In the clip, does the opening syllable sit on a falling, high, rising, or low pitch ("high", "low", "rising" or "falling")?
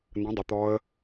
rising